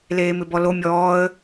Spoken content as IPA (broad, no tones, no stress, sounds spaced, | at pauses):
l eː m ɪ b ɔ l o mʲ ɔː ə̯